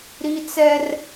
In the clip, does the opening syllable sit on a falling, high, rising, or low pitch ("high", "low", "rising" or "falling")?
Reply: high